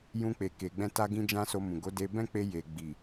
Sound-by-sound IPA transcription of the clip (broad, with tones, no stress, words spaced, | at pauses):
jũ˧ k͡pe˨ke˨ɡ͡bɛ̃˧ta˧ ɡĩ˦d͡ʒã˦so˧mũ˨ ɡo˨˦de˧ bɛ̃˦k͡pe˧ je˨ ɡ͡bi˨